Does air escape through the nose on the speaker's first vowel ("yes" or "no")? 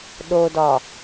no